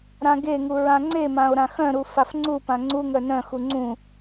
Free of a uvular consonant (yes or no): yes